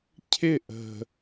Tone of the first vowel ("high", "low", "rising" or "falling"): falling